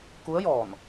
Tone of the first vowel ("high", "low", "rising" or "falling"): rising